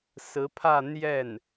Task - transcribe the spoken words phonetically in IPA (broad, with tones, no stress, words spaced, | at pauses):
sɹ̩˧˥pʰä˥˧ n̪jɛ˥˩n